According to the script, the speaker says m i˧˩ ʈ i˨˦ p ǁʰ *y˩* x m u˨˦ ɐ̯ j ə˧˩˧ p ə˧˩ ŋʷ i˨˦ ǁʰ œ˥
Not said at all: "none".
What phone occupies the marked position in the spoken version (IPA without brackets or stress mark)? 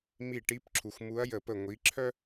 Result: u˩